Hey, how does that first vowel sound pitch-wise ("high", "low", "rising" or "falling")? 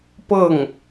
falling